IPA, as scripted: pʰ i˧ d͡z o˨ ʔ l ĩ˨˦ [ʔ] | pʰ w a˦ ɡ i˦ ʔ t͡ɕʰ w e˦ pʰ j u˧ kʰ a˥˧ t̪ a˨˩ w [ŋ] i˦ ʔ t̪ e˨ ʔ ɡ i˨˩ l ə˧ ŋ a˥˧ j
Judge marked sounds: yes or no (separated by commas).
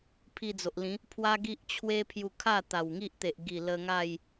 no, yes